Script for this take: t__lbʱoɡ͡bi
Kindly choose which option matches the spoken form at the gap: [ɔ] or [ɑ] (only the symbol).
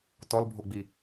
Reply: ɔ